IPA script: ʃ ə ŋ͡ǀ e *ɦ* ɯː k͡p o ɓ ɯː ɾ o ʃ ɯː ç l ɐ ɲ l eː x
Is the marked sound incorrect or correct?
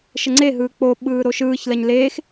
correct